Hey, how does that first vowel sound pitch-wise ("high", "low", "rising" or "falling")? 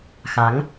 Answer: rising